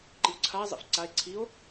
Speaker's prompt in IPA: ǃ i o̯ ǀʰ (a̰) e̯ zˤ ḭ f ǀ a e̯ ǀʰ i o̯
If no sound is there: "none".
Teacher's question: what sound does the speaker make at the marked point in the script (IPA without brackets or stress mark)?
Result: a